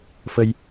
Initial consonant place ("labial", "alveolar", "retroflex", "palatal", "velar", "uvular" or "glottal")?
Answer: labial